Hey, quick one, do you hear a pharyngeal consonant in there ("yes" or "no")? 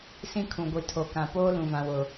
no